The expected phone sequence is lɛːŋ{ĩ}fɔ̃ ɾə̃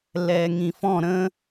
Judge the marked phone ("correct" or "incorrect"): correct